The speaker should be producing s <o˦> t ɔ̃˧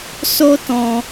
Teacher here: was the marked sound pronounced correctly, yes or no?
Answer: yes